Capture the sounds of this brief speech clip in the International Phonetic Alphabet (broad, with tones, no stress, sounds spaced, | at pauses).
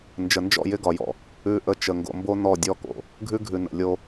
n d͡ʒ ə˨ n d͡ʒ ɔ̰˦˨ j ɪ˦ ɡ ɒ˨ j ɔ̰˨ | ʉ˨ ʔ ə˨ t͡ʃ ə˨ ŋ ɡ o̰˨ m b o˦ n ɔ˦˨ dʲ ɔ˦ k o̰˨ | ɡʱ ʉ˦ ɡʱ ʉ˨ n ə̰˨ lʲ o˦